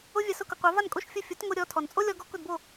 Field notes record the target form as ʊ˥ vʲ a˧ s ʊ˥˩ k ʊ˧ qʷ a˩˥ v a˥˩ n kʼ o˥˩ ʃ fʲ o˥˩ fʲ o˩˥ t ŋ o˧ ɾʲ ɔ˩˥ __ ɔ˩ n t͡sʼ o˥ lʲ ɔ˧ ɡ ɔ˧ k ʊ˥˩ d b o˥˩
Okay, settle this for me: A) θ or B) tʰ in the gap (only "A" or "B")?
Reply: B